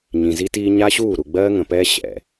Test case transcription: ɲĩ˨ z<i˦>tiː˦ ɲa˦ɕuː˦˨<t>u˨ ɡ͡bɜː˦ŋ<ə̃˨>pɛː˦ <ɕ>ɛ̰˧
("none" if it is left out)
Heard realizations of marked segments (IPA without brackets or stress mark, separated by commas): i˦, ɾ, ə̃˨, ɕ